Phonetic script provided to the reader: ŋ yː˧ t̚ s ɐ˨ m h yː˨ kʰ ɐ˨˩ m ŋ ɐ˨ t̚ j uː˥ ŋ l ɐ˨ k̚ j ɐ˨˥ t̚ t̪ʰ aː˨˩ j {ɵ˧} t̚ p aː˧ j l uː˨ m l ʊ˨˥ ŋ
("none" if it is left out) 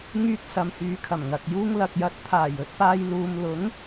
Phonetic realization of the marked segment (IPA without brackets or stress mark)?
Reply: ɵ˧